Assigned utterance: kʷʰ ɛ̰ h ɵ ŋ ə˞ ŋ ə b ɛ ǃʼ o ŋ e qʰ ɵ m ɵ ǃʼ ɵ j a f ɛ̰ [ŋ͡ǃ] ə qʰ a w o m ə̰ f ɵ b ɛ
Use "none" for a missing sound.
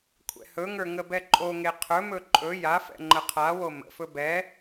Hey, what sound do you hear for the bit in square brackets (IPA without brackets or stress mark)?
ŋ͡ǃ